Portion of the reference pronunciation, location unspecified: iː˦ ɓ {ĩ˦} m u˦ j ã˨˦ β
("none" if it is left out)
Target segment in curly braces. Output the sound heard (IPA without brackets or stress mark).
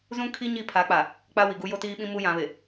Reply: ĩ˦